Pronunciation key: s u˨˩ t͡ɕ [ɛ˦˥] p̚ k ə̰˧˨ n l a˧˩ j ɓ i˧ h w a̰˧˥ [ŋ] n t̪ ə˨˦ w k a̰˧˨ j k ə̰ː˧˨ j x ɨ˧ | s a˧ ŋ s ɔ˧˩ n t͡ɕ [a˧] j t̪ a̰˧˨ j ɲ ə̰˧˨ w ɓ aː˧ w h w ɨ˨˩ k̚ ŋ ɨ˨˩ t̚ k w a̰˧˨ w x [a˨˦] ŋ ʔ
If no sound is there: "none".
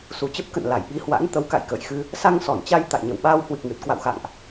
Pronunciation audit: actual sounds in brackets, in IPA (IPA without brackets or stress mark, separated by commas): ə˦˥, none, a˧, a̰˧˨